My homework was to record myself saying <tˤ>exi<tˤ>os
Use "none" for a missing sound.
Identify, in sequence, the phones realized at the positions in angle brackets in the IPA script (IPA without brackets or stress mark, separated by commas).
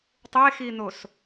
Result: tˤ, n̪